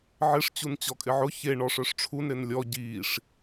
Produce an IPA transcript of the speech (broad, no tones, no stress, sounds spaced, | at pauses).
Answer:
ʕ ɪ ʂ t͡ɕ u n t͡ɕ ɔ kʼ ɪ ʕ ʊ ç e ɳ ɔ ʂ œ ʂ ʈ͡ʂʰ u n ɾ ɪ n lʲ ɔ ɟ i ʂ